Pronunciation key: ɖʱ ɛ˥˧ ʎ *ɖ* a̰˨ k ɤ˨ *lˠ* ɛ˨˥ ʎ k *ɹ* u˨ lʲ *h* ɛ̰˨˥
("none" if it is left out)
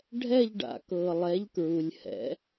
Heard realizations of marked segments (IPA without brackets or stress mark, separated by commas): ɖ, lˠ, ɹ, h